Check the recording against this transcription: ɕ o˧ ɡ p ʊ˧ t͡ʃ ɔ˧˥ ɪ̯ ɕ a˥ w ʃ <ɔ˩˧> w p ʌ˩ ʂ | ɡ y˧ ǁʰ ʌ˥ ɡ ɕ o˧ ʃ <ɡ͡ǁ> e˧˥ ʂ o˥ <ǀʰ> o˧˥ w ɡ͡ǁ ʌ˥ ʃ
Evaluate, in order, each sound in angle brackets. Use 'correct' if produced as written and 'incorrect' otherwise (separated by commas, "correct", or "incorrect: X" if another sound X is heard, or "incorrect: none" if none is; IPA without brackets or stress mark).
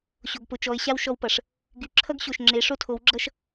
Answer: incorrect: ɔ˧, incorrect: ŋ͡ǁ, incorrect: tʰ